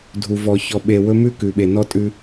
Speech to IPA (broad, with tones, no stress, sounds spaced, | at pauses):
dʱ u˨ v ɔ˨ ç ɔ˨ ɓ e˨ w ɵ˦ m ʉ˦ k ʉ˨ ɓ e˨ n ɔ˦ tʼ ʉ˦